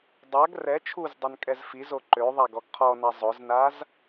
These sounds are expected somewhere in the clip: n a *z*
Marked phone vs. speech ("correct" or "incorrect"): correct